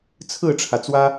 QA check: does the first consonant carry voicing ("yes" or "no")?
no